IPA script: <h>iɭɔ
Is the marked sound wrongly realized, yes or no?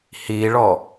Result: no